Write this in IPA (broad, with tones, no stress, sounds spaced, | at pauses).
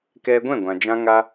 k ɛ˧ ɡʷ ɛ̃˦˨ ɡʷ ã˨ d͡ʒ ã˧ ŋ a˧